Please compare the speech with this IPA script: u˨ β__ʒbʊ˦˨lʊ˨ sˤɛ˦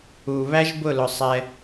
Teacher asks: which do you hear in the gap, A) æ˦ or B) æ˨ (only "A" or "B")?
A